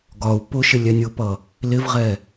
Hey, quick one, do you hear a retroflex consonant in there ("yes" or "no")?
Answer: no